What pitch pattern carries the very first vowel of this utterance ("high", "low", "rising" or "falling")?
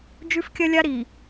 high